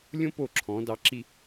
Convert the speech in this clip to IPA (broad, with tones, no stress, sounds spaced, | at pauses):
lʲ õ˥ p o˧˩ ǁʰ ɔ̃˩˧ d ɑ˩˧ ǁ i˧